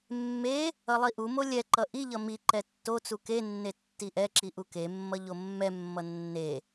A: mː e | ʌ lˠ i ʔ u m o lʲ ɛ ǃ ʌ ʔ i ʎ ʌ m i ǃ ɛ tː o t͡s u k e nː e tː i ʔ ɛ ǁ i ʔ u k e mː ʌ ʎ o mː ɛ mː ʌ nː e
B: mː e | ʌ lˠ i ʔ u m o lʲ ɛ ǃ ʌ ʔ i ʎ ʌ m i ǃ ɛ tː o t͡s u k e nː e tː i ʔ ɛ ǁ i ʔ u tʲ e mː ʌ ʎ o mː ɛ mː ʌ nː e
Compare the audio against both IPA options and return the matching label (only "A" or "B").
A